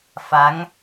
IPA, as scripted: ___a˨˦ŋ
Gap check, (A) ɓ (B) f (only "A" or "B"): B